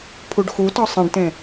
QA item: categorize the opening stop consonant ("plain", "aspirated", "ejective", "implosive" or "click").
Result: aspirated